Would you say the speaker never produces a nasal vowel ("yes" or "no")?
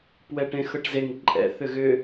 no